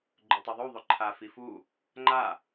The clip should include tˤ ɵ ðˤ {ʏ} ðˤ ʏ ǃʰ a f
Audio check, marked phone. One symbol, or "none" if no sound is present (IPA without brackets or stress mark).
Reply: u